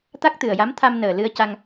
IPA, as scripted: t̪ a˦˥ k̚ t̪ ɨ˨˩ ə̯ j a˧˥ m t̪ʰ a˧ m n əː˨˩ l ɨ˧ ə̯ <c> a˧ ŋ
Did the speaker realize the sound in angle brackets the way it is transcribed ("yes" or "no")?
yes